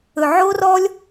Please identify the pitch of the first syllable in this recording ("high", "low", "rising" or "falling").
low